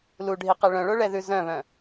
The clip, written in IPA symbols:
l u ɖʱ i q ɛ ɭ œ̃ ɭ o ɭ ɛ ð ʉ z œ̃ β œ̃

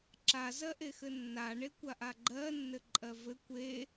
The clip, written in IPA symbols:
ǁ a z ɜ ʔ e x ɘ nː a ɳ e kʷ a ʔ a ɡ͡ǃ ɜ nː ɘ ǃʼ ɜ v ɘ kʷ e

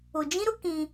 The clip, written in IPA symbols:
ʊ˨ d͡ʒ ĩ˦ ɾ ʊ˦ k ĩ˦

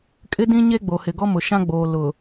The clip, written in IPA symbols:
kʼ ɪ˦ d ĩ˦ ɲ e˦ ɡ͡b o˨ h ɪ˨ ɡ ɔ˦ m ʊ˨ ʃ ã˦ ɡ͡b oː˨ l ʊ˨

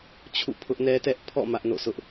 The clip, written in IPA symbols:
t͡ɕʰ ṵ˦˨ pʰ ʊ˦ ʔ n ɛ˦ t ɛ˦ ʔ pʰ ɔ̰˦˨ m ä˦ ʔ n o̰˦˨ sʰ ʊ˦ ʔ

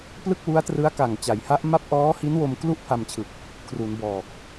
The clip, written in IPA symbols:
p l ɯ˥˩ k̚ w u˦˥ a̯ t r ɯ˦˥ a̯ k a˨˩ ŋ t͡ɕ a˩˦ j h a˦˥ ʔ m a˥˩ p̚ ʔ ɔː˦˥ h i˦˥ n w o˧ m k l u˥˩ ʔ pʰ a˧ m t͡ɕʰ ɯ˨˩ k̚ | kʰ r u˩˦ n b ɔː˨˩ k̚

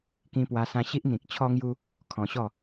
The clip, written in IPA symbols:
k ĩ˧ p w a˧ s ã˧ ɕ i˦ ʔ n̪ ĩ˨ k̚ t͡ɕʰ ɔ˧ ŋ j u˧ | kʰ ɔ̃˧ ɕ ɔ˥˧

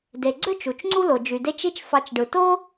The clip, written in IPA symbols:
d e˨ ɡ͡ǀ ø˥ t͡ʃ u˩ t͡ʃ ŋ͡ǀ u˦ l o˩ d͡ʒ y˩ d e˦ t͡ʃ i˦ t͡ʃ f ɑ˨ t͡ʃ ɖ ɯ˩ t o˥

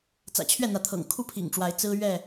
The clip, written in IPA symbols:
t͡s ä̰˨˩ t͡ɕʰ ɥ ɛ˥˨ n̪ ä˨˦ t̪ʰ ɤ̰˨˩ ŋ kʰ u˥˨ pʰ ḭ˨˩ ŋ ʈ͡ʂ w a˨˦ ɪ̯ t͡s ɹ̩˦ ɥ ɛ˥˨

